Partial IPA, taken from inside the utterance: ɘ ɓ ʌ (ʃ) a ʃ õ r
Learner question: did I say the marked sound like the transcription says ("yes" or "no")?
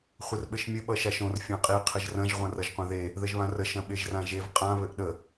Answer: yes